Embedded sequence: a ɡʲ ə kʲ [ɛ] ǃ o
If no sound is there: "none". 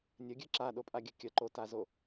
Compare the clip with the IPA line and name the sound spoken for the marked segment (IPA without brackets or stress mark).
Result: ə